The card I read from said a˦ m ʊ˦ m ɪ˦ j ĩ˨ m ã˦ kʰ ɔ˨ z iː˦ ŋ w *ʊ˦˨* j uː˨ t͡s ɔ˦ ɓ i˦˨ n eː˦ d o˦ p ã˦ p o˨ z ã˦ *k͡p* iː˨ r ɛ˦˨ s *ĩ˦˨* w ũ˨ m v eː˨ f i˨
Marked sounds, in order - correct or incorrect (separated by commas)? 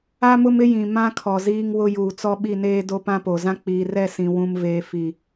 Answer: incorrect, correct, incorrect